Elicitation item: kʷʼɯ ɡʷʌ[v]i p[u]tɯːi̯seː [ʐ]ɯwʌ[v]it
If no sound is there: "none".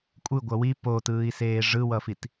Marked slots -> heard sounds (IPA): w, o, ʐ, f

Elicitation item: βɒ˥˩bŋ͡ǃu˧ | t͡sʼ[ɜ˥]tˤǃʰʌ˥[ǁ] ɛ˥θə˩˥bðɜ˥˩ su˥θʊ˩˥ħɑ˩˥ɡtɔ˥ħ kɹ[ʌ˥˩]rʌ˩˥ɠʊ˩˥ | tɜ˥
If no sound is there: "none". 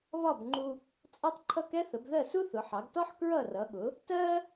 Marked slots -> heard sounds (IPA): ɛ˥, k, ʌ˥˩

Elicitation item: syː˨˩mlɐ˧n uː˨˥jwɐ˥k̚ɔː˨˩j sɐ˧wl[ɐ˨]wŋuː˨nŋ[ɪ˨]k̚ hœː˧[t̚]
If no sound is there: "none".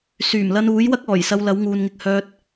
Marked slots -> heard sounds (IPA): ɐ˨˥, ɪ˧, t̚

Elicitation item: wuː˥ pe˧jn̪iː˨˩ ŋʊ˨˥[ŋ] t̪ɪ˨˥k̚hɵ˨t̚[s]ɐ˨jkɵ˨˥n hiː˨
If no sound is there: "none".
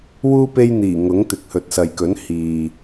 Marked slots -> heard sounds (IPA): ŋ, s

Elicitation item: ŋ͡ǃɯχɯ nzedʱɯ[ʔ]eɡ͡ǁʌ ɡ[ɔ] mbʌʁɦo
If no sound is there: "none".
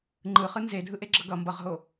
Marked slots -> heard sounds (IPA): ʔ, ʌ

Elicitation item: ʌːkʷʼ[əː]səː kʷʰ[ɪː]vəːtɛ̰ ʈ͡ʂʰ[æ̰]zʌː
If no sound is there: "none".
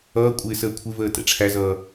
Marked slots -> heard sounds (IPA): ɪː, ɪ, æ

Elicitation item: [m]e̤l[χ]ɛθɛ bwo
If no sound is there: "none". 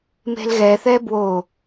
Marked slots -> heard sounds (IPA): m, ɣ

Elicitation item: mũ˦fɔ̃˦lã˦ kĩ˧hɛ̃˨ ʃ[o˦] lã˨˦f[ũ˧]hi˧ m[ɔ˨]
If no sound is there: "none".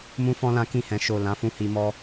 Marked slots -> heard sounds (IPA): o˨, ũ˧, ɔ˧

